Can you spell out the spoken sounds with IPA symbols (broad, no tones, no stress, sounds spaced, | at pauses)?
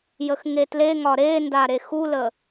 j ə x ŋ e t l e ŋ ɒ ɾ e n d a ɾ e x u l ə